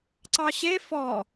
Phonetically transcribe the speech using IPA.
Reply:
ǀ ɑ ɕ e f ɔ

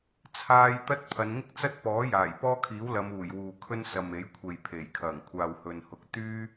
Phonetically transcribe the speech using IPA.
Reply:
t͡sʰ aː˥ j t̪ ɐ˥ t̚ pʰ ɐ˨˧ n ŋ ɪ˥ k̚ t͡s ɐ˥ t̚ p ɔː˨˥ j aː˨˩ j p ɔː˥ kʰ iː˨˥ w l ɐ˨˧ m uː˨˩ j w uː˨ kʰ ɵ˥ n s ɐ˨ m e˨˥ j kʷʰ e˨ j pʰ e˨˩ j kʰ ɐ˨˩ ŋ kʷʰ aː˨ w h ɵ˨ n h ʊ˨˥ k̚ t̪ yː˥

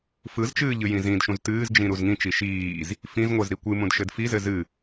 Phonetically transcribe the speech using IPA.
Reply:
f ɯ z t͡ʃ ɨː ʎ ɨ j ĩ z ĩ d ʃ ũ z t ɨː z d͡ʒ ĩ ɾ u z ŋ ĩ t͡ʃ i ʃ iː z | f ĩ z ŋʷ ə z ɾ i kʷ ɨ m ũ d ʃ ɘ d f i z ɘ z ɨ

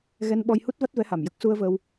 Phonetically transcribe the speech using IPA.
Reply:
ɣ ɛ˧ n ɓ ɔ˧ j h u˦˥ t̚ v a˦˥ t̚ v ɛ˧˥ h a˨˩ m j ə˦˥ k̚ s u˧ ə̯ v əː˧ w

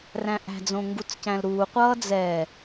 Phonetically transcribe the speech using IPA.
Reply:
r æ̃ ʔ æ̤ d͡z õ ŋ ɡ u t͡s c æ̃ l ɾ uː qʷ ʌː d͡z ɛ

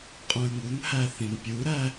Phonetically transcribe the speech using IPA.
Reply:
qʼ ũ ɪ̯ ŋ u n h æ θ ĩ n pʲ u ɾ æ

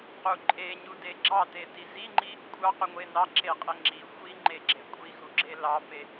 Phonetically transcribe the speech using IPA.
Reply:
q u ǃʼ e ɲ u d e ɡ͡ǁ ɑ t e t i z i ŋ͡ǃ i | kʷʼ ɑ q u ŋʷ e n ɑ ǁ e qʼ e ŋ͡ǁ i xʷ i ŋ͡ǃ e ɡ͡ǁ e kʷʼ i x u ɡ͡ǁ e l ɑ p e

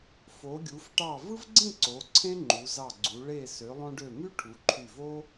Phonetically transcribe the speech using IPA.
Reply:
f o˩˧ ɡʲ u˩˧ f ʈ ɑ˧˩ v ɯ˥ v ɡ͡ǀ ĩ˥˧ ǀ o˩˧ ǀʰ ẽ˥ ŋ͡ǃ u˩˧ z ɑ˧˩ ɡ͡ǀ u˩˧ ɭ e˧˩ s ø˩˧ lˠ õ˧ ɖ ø˧˩ m y˥ ʈʰ u˩˧ ǃʰ y˧˩ v o˥

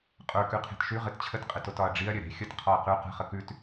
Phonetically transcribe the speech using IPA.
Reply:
qʼ ə˞ k ʉ qʰ e̤ t ʃ ʉ ʁ ɘ t t͡ɕʰ ə t qʼ ɘ t o t ɒ ɐ̯ ɖ͡ʐ i ɐ̯ ɾʲ ɘ ɾ e̤ xʲ ə t qʰ ɒ ɐ̯ q ʉ q ə̤ χ ə k ʉ t

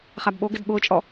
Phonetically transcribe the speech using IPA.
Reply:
χ a b ɓ o ɡ ɪ d ɓ ʊː t͡ʃʼ ɔ

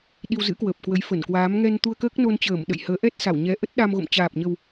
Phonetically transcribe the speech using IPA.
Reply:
ɗ i˧ w z ɨ̰˧˥ k w əː˨˩ p̚ k w ə˨˦ j f ə˧˩ n k w aː˨˦ m ŋ ɛ˧ n t̪ u˧ ə̯ k əː˦˥ k̚ n o˧ n t͡ɕ əː˧˩ m ɗ ə̰˧˨ j h əː˨˦ ʔ ɛ˦˥ t̚ s a˧˩ w ɲ ɛ˨˦ ʔ ə˦˥ t̚ ɗ a˧ m ɣ o̰˧˨ m t͡ɕ aː˨˩ p̚ ɲ ə˨˩ w

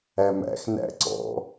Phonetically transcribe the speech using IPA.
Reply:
æ m æ̰ x n æ̰ ǀ ɔ̰

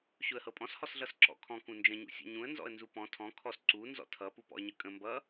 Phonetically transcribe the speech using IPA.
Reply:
ɕ ʊ ə̯ h ɤ pʼ ɔ̃ s h ɔ s ɮ ʌ s ǁ ɔ̰ kʰ ɔ̃ k ũ n d͡ʒ ə̃ ɲ ṵ sʲ ɔ̰ ɲ ũ ə̯ n z ɔ̰ ə̯ n z u p ɔ̃ tʰ ɔ̃ kʰ ɔ s ǀ u n z ɔ̰ tʰ ʌ p u p ɔ̰ ə̯ ɲ ə kʼ ə̃ m b ʌ

